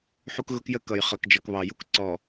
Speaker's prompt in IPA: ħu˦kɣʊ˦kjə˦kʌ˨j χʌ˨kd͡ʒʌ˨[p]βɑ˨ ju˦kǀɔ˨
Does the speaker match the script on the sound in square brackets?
no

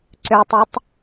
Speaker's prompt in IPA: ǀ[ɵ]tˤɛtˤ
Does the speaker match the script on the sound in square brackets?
no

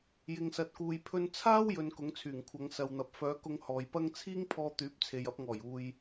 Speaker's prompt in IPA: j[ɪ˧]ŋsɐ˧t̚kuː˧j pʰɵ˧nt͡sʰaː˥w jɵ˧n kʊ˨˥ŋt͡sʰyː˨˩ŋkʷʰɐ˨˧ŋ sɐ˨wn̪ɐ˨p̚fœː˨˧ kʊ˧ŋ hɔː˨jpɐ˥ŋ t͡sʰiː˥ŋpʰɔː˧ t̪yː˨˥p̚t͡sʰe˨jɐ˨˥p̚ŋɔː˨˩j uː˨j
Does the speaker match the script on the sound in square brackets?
yes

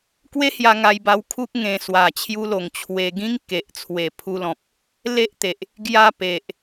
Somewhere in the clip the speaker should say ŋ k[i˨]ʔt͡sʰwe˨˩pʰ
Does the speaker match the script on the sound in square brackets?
no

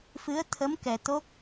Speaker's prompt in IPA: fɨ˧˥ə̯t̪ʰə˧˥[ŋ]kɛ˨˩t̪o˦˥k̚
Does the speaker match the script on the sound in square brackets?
no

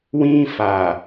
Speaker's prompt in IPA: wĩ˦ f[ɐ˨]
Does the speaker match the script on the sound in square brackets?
no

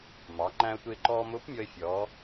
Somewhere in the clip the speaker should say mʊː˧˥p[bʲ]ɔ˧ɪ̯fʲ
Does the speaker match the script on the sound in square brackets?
no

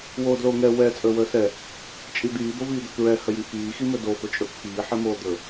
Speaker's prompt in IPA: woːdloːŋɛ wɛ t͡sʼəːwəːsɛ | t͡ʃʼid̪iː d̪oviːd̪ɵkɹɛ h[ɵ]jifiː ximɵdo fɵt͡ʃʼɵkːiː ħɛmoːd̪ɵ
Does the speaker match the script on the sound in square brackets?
no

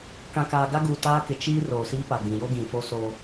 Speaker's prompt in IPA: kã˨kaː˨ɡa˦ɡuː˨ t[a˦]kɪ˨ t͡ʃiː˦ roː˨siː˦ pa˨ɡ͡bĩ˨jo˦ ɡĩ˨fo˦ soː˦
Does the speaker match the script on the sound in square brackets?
no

